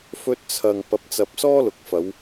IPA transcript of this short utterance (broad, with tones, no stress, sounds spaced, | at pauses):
f ɵ˧ t̚ t͡sʰ ɐ˨ ŋ p ɐ˨ p̚ t͡s ɐ˨ p̚ s ɔː˥ l ʊ˨ k̚ f ɐ˨˧ w